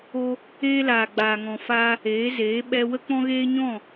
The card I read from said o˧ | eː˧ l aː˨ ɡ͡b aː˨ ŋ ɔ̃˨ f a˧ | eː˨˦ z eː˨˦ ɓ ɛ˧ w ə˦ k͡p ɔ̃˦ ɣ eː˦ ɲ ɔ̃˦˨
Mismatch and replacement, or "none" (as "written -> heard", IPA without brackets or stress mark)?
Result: a˧ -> aː˧